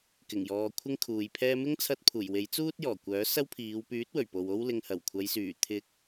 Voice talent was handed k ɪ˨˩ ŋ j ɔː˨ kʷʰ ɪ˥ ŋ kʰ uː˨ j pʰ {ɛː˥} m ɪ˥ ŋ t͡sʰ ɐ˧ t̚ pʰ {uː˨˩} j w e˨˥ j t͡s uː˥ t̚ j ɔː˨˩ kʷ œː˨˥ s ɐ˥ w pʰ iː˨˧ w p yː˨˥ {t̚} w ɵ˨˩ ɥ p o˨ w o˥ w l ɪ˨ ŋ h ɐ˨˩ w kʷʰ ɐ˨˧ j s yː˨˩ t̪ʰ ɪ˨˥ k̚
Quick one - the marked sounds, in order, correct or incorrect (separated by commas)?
correct, correct, correct